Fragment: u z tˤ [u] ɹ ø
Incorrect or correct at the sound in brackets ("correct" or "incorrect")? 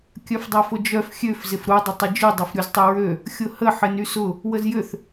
incorrect